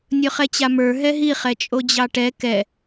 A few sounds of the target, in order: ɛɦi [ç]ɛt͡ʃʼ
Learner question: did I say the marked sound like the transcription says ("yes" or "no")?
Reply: no